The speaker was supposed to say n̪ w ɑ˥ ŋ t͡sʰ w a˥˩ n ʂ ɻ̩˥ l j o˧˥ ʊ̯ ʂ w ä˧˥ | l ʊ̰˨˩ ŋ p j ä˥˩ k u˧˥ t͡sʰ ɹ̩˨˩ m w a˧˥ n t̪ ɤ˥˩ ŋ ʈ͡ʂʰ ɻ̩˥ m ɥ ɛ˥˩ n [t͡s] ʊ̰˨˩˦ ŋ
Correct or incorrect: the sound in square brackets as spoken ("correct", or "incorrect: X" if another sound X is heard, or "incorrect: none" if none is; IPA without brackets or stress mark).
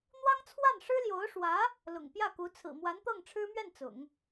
correct